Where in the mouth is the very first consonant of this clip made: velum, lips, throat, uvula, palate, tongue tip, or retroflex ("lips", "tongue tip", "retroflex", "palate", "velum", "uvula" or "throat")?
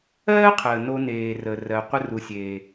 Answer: uvula